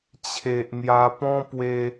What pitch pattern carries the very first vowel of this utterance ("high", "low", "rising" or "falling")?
low